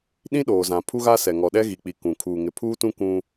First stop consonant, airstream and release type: implosive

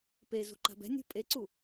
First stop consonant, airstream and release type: plain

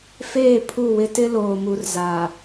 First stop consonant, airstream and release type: aspirated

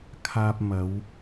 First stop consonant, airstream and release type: aspirated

